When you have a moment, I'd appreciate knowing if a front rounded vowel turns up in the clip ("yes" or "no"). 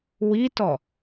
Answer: no